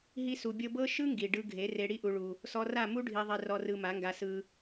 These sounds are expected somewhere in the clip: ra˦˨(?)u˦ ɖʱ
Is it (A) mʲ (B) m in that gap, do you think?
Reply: B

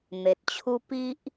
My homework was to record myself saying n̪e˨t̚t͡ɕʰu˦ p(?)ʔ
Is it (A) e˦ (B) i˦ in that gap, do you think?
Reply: B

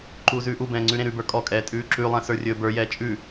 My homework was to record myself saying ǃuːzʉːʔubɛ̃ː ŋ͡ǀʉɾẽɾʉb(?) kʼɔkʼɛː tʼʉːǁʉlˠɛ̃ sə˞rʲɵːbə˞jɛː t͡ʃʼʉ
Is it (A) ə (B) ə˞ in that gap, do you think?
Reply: B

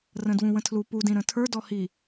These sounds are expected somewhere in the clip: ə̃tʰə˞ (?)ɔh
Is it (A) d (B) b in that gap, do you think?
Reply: A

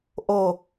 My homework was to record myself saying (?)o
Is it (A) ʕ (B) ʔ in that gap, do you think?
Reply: B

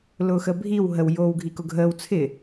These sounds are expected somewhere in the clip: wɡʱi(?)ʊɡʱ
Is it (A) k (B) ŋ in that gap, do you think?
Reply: A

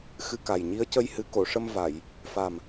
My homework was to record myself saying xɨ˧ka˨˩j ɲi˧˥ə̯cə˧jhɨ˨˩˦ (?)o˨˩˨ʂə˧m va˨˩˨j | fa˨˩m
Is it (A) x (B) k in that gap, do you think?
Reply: B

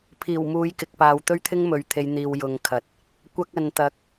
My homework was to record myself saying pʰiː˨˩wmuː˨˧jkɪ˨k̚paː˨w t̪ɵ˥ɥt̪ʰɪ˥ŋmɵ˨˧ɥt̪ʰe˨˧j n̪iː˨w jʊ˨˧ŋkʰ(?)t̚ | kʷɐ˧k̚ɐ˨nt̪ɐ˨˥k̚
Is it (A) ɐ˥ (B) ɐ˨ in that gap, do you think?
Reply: B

